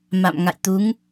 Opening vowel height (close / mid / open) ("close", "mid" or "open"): open